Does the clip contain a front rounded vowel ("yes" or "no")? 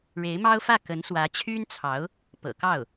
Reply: yes